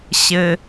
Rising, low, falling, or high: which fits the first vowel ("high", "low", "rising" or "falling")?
low